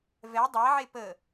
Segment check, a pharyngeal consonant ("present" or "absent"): present